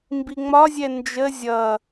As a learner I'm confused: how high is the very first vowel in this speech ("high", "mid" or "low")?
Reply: high